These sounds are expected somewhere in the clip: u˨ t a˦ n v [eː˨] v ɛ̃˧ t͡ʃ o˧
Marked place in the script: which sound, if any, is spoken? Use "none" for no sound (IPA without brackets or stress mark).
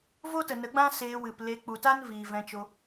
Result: iː˨